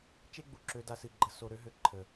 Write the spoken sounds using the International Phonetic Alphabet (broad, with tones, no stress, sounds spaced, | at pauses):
t͡ʃ e˦ ɡ͡b u˩ ǁ ø˨ d a˨ s ɨ˩ ɡ͡ǃ ə˨ s o˨ ɾ ø˦ ɦ ø˩ ǃʰ ə˩